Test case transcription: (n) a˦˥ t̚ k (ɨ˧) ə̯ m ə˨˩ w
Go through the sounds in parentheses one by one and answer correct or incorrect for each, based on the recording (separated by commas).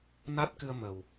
correct, correct